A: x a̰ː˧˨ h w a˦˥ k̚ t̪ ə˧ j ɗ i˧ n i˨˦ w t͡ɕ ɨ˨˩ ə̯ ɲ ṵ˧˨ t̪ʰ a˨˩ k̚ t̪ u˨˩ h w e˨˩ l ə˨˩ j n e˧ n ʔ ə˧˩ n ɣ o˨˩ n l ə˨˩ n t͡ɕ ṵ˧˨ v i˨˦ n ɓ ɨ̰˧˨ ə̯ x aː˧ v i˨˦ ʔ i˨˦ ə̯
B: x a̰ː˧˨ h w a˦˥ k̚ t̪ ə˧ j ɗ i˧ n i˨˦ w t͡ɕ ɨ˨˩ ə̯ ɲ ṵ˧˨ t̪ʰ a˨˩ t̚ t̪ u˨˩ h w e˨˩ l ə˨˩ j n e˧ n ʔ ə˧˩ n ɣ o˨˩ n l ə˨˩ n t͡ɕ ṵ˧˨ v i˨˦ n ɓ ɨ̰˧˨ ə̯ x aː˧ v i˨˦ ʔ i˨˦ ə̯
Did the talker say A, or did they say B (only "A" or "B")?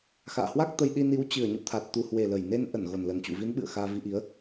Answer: B